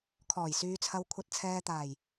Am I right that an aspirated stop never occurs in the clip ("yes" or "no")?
no